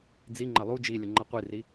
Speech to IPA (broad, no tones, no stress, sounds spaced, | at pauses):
d͡z i ŋ͡ǃ ɐ lˠ u d͡ʒ i lʲ ə ŋ͡ǃ ɐ qʷ i r i